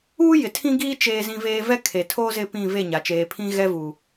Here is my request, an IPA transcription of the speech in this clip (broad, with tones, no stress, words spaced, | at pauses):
uː˦jɪ˨ tʰĩ˦ɡiː˦ t͡ʃeː˦zĩ˦ veː˦ vɛ˦kʰe˨tʰo˦ zɪ˦pĩ˦˨ ve˦˨ɲa˨ t͡ʃeː˨pʰĩ˦ɣɛ˦vuː˨